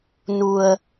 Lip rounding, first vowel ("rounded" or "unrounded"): rounded